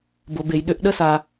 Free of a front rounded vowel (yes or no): no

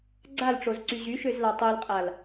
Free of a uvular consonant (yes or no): no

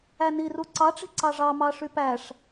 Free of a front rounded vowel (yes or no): no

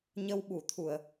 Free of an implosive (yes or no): no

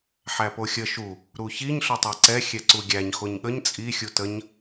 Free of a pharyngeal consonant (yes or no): no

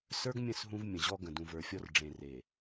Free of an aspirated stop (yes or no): yes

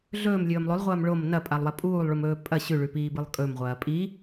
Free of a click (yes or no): yes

